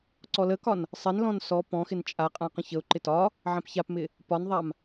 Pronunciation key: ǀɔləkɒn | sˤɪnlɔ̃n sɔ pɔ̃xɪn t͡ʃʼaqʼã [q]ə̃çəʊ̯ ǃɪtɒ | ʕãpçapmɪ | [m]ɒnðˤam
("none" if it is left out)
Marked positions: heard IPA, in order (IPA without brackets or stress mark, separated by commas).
q, p